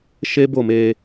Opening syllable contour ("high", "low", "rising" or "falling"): high